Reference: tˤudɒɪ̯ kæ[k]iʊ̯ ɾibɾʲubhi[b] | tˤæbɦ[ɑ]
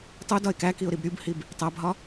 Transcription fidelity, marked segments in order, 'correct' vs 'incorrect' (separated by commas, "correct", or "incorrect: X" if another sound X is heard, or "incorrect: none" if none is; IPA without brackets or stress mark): correct, correct, incorrect: ɒ